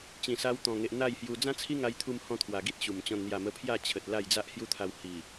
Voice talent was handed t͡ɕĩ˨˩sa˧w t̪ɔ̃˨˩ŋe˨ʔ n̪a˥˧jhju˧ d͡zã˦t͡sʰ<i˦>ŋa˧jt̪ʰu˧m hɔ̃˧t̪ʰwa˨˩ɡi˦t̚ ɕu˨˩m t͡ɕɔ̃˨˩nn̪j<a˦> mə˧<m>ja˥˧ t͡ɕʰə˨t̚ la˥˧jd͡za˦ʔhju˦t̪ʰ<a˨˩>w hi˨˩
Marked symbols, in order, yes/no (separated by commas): yes, no, no, no